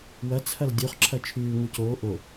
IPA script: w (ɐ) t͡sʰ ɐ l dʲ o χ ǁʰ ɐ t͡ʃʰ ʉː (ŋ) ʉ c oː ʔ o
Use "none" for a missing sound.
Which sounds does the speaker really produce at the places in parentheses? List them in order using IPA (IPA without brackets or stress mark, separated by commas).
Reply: ɐ, ŋ